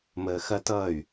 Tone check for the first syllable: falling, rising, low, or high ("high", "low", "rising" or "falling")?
low